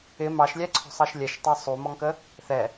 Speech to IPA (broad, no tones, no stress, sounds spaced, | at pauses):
ɪ m ɑ ʃ lʲ æ ǀʰ ɔ̤ sˤ ɑ ʃ lʲ ɛ ʃ tˤ æ sˤ u m ɔ ŋ k ə | θ ɛ